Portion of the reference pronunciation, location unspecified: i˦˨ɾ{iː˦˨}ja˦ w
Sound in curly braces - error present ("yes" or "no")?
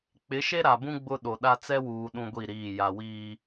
no